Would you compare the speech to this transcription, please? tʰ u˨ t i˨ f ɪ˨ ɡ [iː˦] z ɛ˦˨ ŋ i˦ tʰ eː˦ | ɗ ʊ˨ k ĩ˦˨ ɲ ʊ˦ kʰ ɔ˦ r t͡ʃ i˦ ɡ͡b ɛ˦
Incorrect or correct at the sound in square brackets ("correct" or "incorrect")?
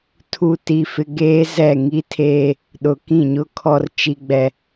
incorrect